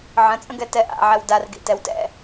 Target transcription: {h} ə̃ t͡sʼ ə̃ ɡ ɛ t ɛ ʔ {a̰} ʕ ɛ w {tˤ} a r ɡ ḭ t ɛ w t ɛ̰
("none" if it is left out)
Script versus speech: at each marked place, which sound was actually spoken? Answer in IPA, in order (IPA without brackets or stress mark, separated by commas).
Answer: ʕ, a̰, d